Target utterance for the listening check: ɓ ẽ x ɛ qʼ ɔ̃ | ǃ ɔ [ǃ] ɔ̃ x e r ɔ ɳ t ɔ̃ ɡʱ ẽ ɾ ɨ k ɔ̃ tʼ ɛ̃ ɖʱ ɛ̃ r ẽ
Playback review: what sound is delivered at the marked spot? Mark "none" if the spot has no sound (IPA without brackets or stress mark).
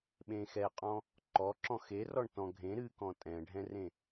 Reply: ǁ